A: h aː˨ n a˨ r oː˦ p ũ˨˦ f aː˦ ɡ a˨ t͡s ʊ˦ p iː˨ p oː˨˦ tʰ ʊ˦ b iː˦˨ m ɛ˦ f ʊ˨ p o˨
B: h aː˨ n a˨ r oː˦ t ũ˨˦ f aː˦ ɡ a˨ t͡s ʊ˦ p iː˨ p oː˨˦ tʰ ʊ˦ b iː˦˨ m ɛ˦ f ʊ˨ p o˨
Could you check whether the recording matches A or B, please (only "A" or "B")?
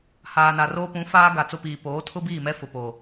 A